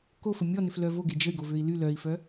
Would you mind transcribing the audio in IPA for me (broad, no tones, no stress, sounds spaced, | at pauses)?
k o f ə mʲ ɔ n ʏ f l œ v o ɡ e d͡ʒ ə y̯ ɡ o v ø i̯ l y l œ i̯ f œ